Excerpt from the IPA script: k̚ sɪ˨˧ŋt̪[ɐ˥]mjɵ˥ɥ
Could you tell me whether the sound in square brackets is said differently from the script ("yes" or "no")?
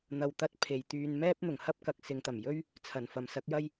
yes